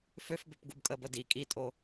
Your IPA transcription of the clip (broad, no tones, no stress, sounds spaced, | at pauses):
f ø f b ø p ɡ u b kʼ ə b ə d i kʼ i tʼ o